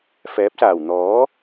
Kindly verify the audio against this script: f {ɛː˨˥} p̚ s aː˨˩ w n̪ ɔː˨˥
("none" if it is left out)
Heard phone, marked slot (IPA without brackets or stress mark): ɛː˨˥